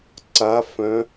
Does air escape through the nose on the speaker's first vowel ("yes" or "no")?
no